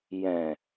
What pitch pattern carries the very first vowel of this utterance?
low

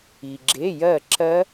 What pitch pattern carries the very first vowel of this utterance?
low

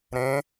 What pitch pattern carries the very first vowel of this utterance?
rising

